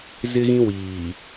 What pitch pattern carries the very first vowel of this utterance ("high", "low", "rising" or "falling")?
high